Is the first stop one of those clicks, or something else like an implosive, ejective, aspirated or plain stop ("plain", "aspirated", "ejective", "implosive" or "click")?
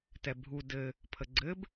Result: plain